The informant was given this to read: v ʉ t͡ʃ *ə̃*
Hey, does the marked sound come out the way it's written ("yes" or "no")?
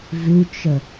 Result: no